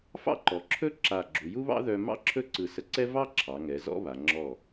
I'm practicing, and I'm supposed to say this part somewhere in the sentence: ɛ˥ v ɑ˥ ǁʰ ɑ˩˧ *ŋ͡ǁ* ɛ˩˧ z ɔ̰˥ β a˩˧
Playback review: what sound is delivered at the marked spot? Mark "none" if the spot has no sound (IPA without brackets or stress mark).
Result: ŋ